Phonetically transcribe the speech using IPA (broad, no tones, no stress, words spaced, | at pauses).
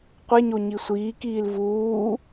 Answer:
qʷeɲo ɲisʷiːkiːl vuː